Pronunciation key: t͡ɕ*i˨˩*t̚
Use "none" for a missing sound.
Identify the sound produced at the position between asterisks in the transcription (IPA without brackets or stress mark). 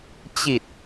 i˨˩